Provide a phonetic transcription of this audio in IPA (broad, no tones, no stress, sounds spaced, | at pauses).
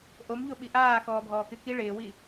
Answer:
ʔ o m ʎ o ɓ i ʔ aː x ɔː bʱ ɔː k ɪ k i ɭ ɪː w i